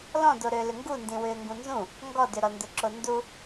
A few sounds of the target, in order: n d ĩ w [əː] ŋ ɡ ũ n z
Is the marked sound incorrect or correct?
incorrect